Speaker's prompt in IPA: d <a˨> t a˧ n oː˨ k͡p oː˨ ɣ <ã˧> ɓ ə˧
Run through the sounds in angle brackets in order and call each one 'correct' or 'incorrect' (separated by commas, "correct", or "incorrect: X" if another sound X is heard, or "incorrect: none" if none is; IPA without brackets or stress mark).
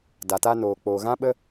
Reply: correct, correct